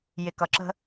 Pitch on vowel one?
low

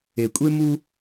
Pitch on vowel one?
low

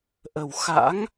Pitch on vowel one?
low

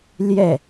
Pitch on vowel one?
falling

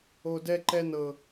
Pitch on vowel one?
low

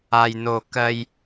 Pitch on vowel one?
low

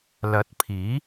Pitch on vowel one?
rising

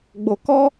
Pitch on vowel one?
low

